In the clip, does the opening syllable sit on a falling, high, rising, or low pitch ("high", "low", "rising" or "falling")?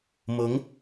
rising